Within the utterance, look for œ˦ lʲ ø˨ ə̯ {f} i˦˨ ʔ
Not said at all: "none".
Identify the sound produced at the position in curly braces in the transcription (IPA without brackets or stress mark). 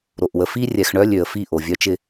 f